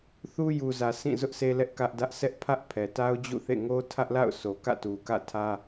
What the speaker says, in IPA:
θ u˦ j u˨ z ä˨ sʰ ĩ˦˨ z ʊ˦ ʔ s e˦ l ɛ˦ ʔ k ä˦ ʔ d ä˦ ʔ sʰ ɛ˦ ʔ pʰ ä˦ ʔ pʰ ɛ˨ t a˦ ʊ̯ d͡ʑ ṵ˦˨ θ ḛ˦˨ ŋ o˦ tʰ ä˦ ʔ l a̰˦˨ ʊ̯ s o˨ k ä̰˦˨ t u˨ k ä̰˦˨ tʰ ä˦

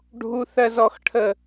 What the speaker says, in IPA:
ɖʱ u˦ θ ɜ˦ z ɔ˦ x ʈʰ ə˦

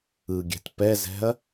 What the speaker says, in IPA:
ɯ ɡʲ ɛ̤ t p ɛ z ɛ̤ ɐ̯

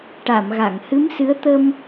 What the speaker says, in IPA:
ʈ a˨˩˨ m ɣ a˨˩˨ ŋ h ɨ˧˥ m s ɨ˧˥ ə̯ t̪ ə˧ m

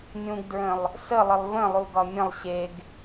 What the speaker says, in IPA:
nʲ ũ ɡ d ɹ ə̃ lˠ | s ə lˠ ə lˠ v ə̃ lˠ u ɡ ɒ mʲ ə̃ lˠ ɕ e ɡ

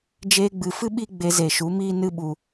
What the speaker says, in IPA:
d͡ʒ eː˧ ɡ͡b ɨ˨ f ɨ˦ ɓ i˦ ɡ͡b e˧ z e˨ ʃ u˨˦ m iː˦ n ɨ˧ ɓ u˨

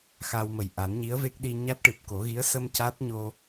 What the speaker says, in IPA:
x a˧ w m ə˨˩ j ʔ a˨˩˦ n ɲ i˧˥ ə̯ v e˦˥ k̚ ɗ i˧ ɲ a˦˥ t̚ ʈ ɨ˨˩ p̚ k o˨˩˦ ɣ i˧˥ ə̯ s ə˧ m c a˦˥ t̚ ɲ o˧

